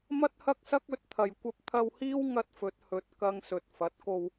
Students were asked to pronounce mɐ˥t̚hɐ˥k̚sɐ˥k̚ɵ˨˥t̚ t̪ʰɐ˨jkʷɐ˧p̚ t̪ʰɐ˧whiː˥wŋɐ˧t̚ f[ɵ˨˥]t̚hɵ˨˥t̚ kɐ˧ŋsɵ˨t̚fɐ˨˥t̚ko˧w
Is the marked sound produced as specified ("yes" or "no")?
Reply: yes